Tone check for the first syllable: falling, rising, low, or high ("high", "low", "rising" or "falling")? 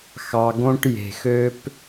low